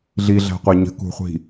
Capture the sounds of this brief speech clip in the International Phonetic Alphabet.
ɮ i ɮ æ̤ qʷ æ ɲ ə̤ k ṳ χʷ i̤

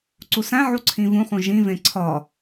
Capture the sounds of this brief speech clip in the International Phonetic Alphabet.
ǀ u s æ̃ ʕ u ǀʰ ĩ v ũ χ ũ ʒ ĩ v ẽ ǀʰ ɒ

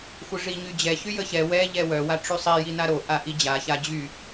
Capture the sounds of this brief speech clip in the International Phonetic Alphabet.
xʷ ə ʐ i ɲ y d͡ʑ ɛ ç y j ə ç ɛ w ɛ ʎ ɛ w œ w a ʈ͡ʂ y sˤ i j i n a ɾ o ʔ a ʔ i d͡ʑ a ç a d͡ʑ y

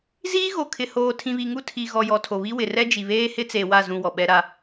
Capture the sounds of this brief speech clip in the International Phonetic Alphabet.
z iː˦ ɣ o˨ kʰ ɪ˨ h oː˨ tʰ ĩ˨ β i˨ ŋ u˦˨ tʰ i˨ ɣ ɔ˨ j ɔ˨ tʰ o˨ β i˦ w ɪ˨ r ɛ˦ d͡ʒ i˨ β eː˦ h ɪ˦ t͡s e˨ w a˦˨ z ũ˨ w ɔ˨ ɓ ɛ˦ ɾ a˦

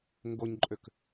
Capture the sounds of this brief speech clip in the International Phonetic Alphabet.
ŋ ɡ o ɲ ǃʼ ø k

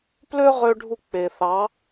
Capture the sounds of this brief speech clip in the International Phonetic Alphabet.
p l ø˦ ʁ ø˧ ɖʱ u˦˨ k͡p e˨ θ ɑ˨˦

